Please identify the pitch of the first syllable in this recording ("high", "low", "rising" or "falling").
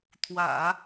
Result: low